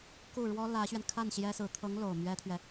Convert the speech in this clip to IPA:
ku˥˩ ɻwɔ˥lä˧˥ɕɥɛ˧n kʰa˥˩n ɕjɛ˥sɹ̩˧˥ t̪ʰɤ˧˥ŋ lo˨˩ʊ̯mɥɛ˥t̪ʰɥɛ˨

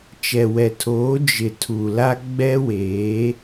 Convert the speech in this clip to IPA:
t͡ʃɛ˨wɛ˨tʰoː˨˦ d͡ʒɪ˨ tʰu˨la˦ ɡ͡bɛ˦weː˨˦

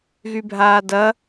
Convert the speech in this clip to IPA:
ɣybʱaːdɐ

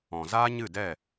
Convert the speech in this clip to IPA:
ɔ̃˨zaː˦ɲɨ˦˨dɛ˦˨

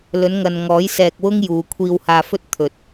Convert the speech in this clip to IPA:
lɵ˨˧nŋɐ˨n ŋɔː˨˥jsɛː˧k̚wʊ˥ŋ juː˨˧ kʷʰiː˧whaː˧fɵ˥t̚t̪ʰɵ˨t̚

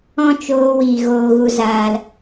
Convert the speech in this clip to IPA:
ɔ̃˦t͡ʃoː˧wiː˨ ɣoː˨ɣu˨zaː˨l

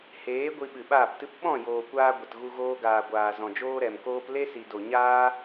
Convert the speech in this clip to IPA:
heː˨˦ ɡʷi˧ɓɨ˨ɓaː˦˨ptɨ˦p ɓɔ̃˦˨ joː˨kʷaː˧ ɡʷə˨tɣu˧ ɣoː˧ɡaː˨ɡʷaː˨ zɔ̃˨d͡ʒoː˦ɾɛ˨mkoː˦p le˦si˨do˨ ɲaː˦

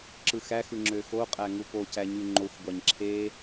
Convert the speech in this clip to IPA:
ǁɯxæxɯ ŋ͡ǁøxoqʼæ ŋupocæ ɲyŋ͡ǃoxʷɡʷɑɲ ǁʰe

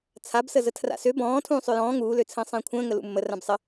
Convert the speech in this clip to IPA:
t͡sʰabsəzə tʰra̰sø bɔ̃ː tʰũːsˤøjɔ̃ː ŋuːløt͡sʰə̃ː sˤə̃ːkʷʰə̃ːŋə lṵmːə rãbsˤə

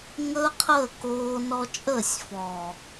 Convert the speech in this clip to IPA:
ŋəː˦qʰəː˦˨koː˧nɔ˧ t͡ʃʼəː˦˨sʲfɔː˨

